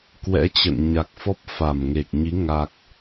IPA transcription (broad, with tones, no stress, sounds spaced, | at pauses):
k w ɛ̰˧˥ t͡ɕ ə̰˧˨ n ɲ a˨˩ k̚ f ɔ˦˥ p̚ f a˧˩ m ŋ e˨˩ k̚ ɲ i˨˦ ŋ a˨˩ k̚